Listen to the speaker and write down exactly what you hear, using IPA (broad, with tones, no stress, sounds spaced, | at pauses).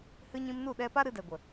h ɨ˧ ɲ ĩ˧ m n u˦˨ ɗ ɛ˧ p a˦ ɾ ɨ˧ d ɛ˨ ɡʷ ə˨